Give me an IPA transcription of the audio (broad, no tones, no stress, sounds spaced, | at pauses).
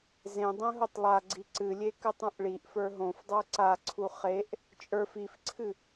z ẽ dˤ ẽ ɦ o tˤ lˠ a ɡ͡ǀ i ǀ ɨ lʲ e k ɨ tˤ ũ ʔ ɭ i ʔ f ə˞ ɦ õ f dˤ ə˞ ǀ a ǀʰ u χ e ʔ | t͡ʃʼ ə˞ f i f ǀʰ ɨ